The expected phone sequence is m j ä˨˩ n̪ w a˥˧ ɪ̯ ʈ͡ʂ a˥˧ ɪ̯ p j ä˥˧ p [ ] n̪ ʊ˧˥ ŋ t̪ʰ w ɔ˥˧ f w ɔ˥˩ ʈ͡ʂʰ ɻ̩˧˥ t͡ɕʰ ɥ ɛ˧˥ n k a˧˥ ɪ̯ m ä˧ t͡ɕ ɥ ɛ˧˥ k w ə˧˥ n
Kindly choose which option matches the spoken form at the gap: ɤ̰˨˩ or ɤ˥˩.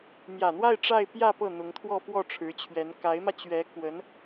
ɤ˥˩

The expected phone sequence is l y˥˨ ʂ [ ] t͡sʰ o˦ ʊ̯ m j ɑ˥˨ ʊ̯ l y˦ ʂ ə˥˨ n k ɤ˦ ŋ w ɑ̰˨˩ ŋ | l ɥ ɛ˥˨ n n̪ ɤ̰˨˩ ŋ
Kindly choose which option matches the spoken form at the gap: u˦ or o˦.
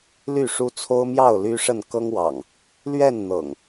u˦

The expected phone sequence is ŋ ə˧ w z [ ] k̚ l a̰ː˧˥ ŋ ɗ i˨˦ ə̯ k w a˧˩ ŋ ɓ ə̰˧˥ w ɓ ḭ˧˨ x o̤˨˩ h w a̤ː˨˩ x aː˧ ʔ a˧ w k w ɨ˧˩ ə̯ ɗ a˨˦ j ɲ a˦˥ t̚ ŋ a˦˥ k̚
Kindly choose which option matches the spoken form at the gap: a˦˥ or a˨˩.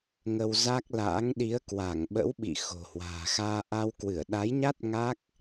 a˦˥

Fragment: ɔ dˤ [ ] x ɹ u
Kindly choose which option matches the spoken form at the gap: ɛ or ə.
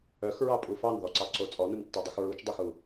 ɛ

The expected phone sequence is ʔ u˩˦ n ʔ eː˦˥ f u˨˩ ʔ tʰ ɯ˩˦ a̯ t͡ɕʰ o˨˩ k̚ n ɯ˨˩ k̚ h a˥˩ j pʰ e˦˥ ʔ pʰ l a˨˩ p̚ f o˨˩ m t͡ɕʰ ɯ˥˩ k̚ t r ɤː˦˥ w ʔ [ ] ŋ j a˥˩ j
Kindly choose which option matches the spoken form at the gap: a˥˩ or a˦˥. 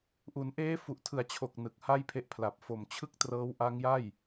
a˦˥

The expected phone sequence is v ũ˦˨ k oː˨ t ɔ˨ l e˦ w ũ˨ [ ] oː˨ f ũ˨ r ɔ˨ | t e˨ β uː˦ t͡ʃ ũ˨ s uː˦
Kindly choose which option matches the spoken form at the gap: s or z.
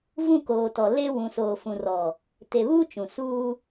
s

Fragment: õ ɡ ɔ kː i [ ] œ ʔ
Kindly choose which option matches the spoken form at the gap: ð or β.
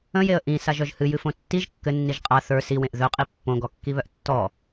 β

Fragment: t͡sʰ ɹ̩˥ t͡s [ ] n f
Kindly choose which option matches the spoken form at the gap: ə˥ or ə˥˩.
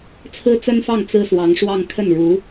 ə˥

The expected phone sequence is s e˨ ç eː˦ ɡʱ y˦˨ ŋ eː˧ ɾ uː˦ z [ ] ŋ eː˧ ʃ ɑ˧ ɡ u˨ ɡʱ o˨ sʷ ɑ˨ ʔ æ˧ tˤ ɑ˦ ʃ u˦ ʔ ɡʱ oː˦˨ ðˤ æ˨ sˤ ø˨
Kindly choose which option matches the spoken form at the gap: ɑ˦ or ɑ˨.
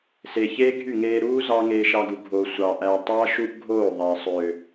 ɑ˦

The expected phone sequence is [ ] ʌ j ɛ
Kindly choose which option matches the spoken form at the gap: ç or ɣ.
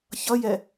ç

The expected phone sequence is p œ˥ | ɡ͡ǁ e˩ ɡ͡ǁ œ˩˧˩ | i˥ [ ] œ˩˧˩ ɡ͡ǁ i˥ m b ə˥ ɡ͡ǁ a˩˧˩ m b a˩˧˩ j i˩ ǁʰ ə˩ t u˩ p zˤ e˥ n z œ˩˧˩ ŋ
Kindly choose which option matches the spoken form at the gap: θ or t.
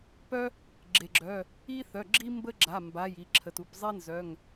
θ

